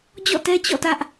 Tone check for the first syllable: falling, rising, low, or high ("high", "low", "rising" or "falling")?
falling